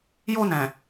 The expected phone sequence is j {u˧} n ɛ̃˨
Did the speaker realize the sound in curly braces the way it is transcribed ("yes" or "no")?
no